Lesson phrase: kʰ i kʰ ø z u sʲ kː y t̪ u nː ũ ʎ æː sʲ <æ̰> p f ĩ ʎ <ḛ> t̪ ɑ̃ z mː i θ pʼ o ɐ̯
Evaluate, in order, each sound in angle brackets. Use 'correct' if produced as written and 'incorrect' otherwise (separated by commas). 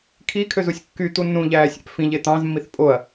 correct, incorrect